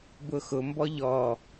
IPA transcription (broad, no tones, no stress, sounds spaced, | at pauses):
b ʊ x ʊ m b ɔ ʎ ɔ